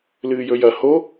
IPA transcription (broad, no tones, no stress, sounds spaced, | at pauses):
l ɨː j ɵ j ɐ h o